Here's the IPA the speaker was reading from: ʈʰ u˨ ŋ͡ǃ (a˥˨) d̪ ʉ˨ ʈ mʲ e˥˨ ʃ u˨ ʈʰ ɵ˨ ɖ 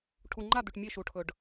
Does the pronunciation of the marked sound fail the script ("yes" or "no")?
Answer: no